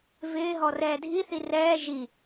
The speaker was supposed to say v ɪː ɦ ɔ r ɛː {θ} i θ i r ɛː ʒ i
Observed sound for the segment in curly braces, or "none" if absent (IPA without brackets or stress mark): dʱ